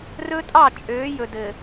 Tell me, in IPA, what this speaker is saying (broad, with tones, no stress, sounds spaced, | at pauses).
r ɵ˦ tʼ ɑ˦˨ t͡ʃʼ øː˨˦ j ɵ˨ d ɘ˨